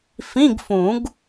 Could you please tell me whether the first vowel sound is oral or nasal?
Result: nasal